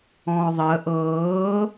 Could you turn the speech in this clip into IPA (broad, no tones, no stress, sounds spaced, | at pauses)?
ɔ̃ː ʊ̯ ðˤ əː ʔ ɤː